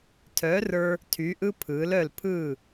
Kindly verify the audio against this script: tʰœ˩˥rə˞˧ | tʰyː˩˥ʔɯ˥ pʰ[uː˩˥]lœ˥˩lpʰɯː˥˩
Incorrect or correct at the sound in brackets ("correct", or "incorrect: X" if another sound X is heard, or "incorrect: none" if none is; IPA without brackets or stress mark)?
incorrect: ɯː˩˥